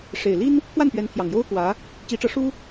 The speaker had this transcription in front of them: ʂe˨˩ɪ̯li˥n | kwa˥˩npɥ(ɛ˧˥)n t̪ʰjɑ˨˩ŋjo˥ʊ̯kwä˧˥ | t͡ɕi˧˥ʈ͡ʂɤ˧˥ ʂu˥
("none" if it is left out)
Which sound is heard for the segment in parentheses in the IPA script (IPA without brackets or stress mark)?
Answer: ɛ˧˥